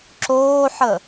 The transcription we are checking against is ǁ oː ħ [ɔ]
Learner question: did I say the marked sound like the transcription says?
no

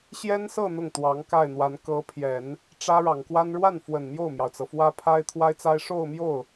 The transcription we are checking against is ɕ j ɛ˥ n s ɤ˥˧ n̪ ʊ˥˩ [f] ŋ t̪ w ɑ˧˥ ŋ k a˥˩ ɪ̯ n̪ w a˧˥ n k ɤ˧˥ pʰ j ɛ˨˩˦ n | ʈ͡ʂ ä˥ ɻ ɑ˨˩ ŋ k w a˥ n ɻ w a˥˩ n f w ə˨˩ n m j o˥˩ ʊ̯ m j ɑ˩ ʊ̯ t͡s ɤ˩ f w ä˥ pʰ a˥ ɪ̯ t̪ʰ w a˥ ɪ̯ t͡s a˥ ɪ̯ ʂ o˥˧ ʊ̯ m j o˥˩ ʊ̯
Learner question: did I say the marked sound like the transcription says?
no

